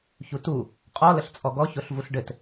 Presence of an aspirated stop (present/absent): absent